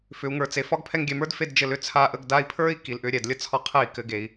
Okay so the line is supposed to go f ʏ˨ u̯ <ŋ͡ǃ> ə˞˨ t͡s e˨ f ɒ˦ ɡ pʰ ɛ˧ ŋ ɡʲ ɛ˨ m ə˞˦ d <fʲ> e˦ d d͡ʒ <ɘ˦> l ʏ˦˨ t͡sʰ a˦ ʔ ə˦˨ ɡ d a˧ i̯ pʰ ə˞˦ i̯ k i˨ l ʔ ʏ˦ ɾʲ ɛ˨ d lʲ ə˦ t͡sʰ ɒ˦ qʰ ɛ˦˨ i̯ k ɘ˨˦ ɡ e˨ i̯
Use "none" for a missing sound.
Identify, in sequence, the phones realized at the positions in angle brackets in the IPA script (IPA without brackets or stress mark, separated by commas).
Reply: ŋ, f, ɘ˧